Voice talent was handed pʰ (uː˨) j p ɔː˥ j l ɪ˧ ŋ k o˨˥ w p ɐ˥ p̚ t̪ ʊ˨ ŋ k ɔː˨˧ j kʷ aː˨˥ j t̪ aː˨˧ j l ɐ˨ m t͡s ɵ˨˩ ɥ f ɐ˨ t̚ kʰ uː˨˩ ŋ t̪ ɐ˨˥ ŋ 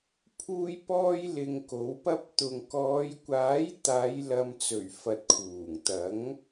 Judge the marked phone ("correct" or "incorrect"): incorrect